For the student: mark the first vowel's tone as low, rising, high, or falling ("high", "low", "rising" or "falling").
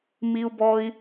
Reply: high